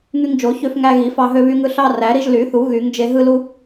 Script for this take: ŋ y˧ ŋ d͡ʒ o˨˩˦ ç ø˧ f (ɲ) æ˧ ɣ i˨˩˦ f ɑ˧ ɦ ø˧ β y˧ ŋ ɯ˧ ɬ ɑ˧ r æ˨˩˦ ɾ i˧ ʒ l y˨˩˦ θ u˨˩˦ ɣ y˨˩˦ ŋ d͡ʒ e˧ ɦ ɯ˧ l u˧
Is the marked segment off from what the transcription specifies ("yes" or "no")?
yes